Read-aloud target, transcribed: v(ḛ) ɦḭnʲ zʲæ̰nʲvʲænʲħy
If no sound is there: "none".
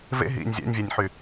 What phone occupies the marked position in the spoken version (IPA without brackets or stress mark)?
ḛ